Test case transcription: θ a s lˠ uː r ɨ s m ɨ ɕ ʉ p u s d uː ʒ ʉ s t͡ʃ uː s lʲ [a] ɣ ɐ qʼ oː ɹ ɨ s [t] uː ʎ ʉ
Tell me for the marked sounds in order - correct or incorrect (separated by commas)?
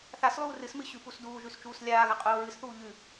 incorrect, incorrect